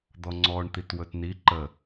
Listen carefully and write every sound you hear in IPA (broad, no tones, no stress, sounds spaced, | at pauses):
d̪ ɔ ŋ͡ǀ ɔ ɳ t̪ i t w ɵ t n i ǃ ə